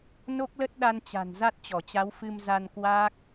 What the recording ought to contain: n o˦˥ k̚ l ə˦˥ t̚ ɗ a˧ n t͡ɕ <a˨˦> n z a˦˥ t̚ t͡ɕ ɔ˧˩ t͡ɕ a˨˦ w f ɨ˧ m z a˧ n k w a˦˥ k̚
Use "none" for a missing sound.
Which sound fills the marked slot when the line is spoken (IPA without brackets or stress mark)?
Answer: a̤˨˩